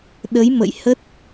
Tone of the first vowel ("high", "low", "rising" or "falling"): rising